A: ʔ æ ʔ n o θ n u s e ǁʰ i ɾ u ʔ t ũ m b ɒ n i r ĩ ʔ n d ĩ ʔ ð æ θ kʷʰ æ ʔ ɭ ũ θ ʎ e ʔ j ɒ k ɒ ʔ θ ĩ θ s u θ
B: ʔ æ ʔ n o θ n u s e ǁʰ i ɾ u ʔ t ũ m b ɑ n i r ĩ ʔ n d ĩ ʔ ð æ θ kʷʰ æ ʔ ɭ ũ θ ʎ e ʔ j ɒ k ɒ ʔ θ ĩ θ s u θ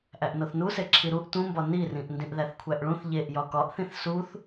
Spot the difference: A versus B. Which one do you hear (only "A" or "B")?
A